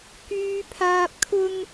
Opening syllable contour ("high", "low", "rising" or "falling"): low